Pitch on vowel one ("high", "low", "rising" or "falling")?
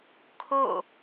falling